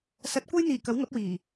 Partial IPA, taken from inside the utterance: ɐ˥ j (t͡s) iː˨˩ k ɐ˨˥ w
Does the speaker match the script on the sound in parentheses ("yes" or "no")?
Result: no